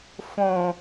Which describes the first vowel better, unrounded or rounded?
rounded